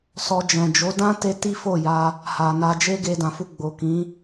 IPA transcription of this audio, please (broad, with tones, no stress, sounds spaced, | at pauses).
s ɔ˧ d͡ʒ ɛ̃˨ d͡ʒ o˨˦ d ã˦ t e˦ t i˦ f o˦˨ j a˧ | h a˨ n a˧ d͡ʒ e˦ ɡ e˧ d ã˨ f u˧ ɡ͡b o˨ k ĩ˨˦